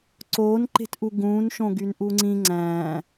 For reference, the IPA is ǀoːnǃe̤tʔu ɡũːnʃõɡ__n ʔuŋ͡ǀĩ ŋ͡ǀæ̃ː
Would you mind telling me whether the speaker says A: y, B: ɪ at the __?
A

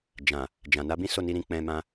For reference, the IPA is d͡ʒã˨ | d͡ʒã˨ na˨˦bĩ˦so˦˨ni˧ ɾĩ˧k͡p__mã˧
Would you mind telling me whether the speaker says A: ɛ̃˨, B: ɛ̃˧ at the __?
B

